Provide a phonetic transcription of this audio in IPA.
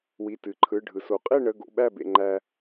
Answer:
w i˩˧˩ t ɨ˩ ǃʰ ɯ˩˧˩ ɖʱ ɯ˩ s o˩ qʼ e˥˨ ɳ ə˩˧˩ ɡ o̰˩˧˩ ɓ æ˧˩ b ḛ˩ ŋ͡ǃ æ˩

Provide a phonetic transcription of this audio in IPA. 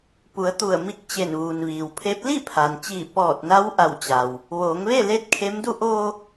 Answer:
p u˩˧ ə̯ t̪ u˧˩ ə̯ m i˧ k̚ t͡ɕ e˧˩ n ʋ uː˩ n ʋ iː˩ w pʰ e˧˥ p̚ l i˥˨ pʰ aː˩ n t͡ɕ iː˧˩ p ɔː˧˩ t̚ n a˧˥ w ʔ a˧˩ w t͡ɕ a˩ w | ʋ oː˩˧ ŋ ʋ e˥˨ l e˧˥ t̚ kʰ e˧˥ m d u˧ ʔ oː˧

